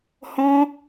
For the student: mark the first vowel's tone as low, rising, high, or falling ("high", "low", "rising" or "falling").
high